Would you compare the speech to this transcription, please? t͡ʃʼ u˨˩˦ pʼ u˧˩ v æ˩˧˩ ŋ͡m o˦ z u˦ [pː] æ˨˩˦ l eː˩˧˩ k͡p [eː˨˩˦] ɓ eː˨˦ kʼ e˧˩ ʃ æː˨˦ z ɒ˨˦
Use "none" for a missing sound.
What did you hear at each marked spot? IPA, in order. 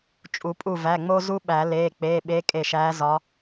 ɓ, eː˩˧˩

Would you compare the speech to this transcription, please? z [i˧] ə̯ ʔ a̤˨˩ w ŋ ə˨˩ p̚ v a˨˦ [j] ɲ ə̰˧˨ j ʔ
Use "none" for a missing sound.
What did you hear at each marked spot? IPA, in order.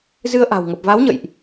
ɨ˧, w

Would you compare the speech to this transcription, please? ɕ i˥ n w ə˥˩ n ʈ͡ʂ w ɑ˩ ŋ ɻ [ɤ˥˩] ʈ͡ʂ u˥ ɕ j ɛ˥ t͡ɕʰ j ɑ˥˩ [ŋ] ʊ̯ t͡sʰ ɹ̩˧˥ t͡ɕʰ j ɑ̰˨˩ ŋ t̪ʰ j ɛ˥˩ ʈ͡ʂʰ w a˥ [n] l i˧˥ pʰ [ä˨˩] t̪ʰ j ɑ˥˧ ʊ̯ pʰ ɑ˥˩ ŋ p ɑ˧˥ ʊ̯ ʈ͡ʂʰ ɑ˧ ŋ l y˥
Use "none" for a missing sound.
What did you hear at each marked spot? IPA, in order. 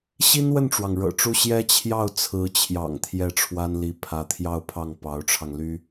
ɤ̰˨˩, none, n, ä˧˥

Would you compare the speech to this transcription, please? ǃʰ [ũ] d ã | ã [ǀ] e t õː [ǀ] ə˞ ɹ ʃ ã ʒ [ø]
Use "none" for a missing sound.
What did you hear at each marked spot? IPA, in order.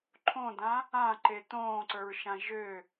õ, ǃ, ǀ, ø

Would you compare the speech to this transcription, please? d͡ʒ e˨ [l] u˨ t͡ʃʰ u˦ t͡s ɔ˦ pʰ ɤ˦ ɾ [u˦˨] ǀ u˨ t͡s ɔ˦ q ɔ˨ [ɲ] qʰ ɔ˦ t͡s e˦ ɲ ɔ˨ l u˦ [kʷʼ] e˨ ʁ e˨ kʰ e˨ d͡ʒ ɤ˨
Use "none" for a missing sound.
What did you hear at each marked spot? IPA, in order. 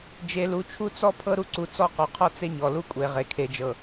l, u˦, none, kʷʼ

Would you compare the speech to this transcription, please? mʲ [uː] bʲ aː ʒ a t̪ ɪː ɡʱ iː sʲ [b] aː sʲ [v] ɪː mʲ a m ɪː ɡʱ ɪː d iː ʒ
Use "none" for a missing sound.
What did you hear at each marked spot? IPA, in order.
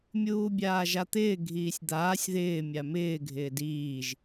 uː, d̪, ð

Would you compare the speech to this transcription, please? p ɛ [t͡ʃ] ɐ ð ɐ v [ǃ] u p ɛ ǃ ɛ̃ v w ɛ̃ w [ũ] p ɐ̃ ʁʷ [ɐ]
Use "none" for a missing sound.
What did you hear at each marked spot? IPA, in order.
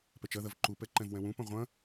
t͡ʃ, ǃ, ũ, ɐ̃

